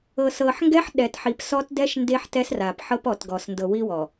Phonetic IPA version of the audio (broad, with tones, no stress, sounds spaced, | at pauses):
ɤ˨ s ɤ˨ ħ ŋ ɡ ɛ˦ ħ ɗ ɛ˨ t ħ i˨ p s ɔ˦ t d ɛ˦ ʃ n d e˦ ħ t ɛ˦ s r a˨ p ħ ɤ˦ p ɔ˨ t ɡ ɔ˨ s n d ɤ˨ w i˦ w ɔ˨